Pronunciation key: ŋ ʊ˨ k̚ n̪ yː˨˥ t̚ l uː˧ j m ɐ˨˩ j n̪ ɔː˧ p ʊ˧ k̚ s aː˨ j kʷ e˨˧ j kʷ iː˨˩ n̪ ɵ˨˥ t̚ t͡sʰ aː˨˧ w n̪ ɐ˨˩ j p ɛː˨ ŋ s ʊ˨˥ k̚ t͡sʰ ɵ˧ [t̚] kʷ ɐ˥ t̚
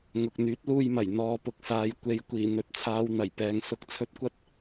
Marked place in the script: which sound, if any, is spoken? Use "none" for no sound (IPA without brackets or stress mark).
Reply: t̚